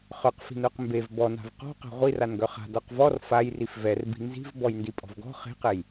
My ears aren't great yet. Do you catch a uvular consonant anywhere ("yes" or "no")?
yes